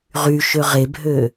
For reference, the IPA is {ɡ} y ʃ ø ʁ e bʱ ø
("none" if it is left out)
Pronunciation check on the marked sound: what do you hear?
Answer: ʁ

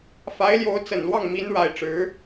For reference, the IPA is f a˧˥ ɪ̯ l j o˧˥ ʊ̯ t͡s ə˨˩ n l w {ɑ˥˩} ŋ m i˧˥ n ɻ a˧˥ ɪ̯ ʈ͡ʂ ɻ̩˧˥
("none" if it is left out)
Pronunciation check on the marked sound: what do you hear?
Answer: ɑ˥˩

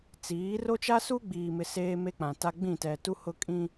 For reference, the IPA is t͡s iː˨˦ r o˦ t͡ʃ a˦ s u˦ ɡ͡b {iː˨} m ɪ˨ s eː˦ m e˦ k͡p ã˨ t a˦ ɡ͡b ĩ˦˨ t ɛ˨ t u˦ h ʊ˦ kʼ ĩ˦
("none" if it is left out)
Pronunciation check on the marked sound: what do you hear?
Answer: iː˨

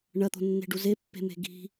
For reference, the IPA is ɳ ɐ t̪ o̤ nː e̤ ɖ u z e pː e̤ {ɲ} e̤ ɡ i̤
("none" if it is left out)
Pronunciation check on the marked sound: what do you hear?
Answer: m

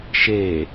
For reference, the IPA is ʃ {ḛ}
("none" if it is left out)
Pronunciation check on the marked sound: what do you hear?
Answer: e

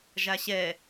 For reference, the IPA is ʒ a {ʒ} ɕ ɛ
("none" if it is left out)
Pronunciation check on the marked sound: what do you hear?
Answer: none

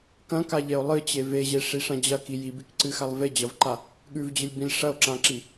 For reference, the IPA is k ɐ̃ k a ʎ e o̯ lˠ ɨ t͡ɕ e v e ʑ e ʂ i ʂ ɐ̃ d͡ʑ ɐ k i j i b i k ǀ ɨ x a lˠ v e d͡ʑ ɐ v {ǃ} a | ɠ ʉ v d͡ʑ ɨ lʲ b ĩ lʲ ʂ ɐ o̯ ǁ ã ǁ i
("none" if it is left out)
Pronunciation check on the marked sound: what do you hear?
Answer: ǃ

